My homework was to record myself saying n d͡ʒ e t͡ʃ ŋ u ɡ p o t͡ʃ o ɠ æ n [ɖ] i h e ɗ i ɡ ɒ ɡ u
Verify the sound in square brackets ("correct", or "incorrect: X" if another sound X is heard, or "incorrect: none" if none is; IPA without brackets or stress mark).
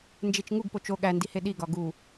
incorrect: d